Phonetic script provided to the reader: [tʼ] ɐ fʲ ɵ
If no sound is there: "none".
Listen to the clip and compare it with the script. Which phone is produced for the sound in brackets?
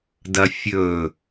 d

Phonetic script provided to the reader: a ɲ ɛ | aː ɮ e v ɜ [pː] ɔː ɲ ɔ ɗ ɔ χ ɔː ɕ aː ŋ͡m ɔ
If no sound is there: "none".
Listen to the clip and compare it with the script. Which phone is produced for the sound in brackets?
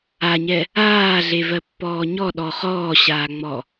pː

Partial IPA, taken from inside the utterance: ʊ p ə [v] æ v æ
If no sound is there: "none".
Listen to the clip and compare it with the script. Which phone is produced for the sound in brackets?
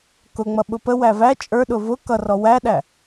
w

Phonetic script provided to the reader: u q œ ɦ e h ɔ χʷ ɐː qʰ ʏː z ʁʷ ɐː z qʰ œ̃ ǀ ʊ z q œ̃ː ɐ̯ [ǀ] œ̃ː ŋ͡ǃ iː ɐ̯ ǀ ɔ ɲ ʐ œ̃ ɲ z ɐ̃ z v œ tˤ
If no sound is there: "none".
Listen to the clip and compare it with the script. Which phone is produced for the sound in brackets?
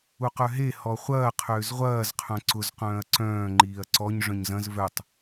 ǀ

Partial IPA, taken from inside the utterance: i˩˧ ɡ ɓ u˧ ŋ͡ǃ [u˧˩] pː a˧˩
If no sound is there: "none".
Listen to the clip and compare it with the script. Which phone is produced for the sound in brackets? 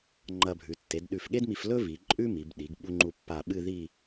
u˧˩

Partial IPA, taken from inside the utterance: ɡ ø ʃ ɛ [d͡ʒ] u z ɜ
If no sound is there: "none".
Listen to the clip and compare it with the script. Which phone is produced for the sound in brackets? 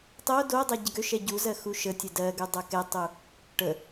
ɟ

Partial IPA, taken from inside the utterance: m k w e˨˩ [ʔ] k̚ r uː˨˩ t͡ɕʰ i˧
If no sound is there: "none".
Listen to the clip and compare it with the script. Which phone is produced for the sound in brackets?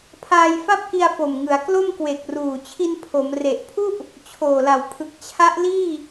none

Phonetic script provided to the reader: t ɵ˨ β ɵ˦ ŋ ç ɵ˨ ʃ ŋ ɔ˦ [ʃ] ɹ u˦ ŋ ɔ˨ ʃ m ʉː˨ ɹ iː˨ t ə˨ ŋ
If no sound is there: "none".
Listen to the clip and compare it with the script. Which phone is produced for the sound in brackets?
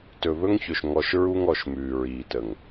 ʃ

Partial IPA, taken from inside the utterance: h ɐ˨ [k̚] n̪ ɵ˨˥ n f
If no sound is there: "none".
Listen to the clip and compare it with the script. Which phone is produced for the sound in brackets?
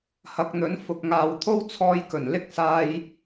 k̚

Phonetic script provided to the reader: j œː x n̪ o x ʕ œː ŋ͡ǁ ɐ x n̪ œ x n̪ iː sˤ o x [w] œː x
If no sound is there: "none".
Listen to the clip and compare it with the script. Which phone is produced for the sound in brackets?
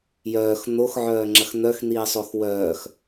w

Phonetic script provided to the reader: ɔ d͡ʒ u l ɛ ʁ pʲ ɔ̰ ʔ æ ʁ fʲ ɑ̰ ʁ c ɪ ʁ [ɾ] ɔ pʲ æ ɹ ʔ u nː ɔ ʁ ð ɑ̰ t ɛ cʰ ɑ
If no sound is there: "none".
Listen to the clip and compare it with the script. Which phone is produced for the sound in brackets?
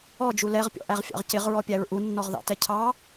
ɹ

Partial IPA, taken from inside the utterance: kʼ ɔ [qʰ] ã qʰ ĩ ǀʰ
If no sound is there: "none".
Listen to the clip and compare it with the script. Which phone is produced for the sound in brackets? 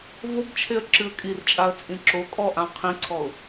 ʔ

